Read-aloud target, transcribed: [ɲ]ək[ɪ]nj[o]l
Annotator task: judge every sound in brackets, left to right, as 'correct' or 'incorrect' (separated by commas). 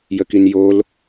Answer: incorrect, incorrect, correct